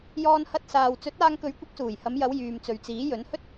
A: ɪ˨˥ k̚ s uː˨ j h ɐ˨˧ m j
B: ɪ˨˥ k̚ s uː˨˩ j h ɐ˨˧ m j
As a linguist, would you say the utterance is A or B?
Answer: B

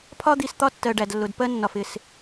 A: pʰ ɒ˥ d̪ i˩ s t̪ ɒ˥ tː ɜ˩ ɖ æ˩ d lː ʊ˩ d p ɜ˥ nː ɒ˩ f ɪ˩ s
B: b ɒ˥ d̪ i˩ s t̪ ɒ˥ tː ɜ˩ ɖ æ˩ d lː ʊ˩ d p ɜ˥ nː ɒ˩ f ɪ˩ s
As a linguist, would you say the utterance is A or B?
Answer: A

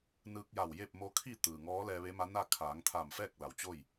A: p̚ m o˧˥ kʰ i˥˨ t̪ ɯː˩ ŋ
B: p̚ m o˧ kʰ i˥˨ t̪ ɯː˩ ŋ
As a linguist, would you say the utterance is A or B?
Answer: A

